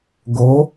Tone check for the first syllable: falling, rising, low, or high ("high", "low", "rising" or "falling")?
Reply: rising